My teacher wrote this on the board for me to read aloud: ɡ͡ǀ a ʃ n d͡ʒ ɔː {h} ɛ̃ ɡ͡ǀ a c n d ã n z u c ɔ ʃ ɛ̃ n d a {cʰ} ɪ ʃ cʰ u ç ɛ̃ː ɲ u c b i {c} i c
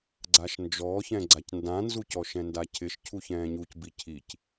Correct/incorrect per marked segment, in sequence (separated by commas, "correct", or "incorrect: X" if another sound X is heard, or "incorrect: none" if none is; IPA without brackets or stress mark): incorrect: ç, correct, incorrect: cʰ